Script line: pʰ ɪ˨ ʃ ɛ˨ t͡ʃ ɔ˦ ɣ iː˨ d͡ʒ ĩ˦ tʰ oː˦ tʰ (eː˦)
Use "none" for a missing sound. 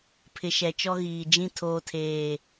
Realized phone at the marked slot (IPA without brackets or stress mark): eː˦˨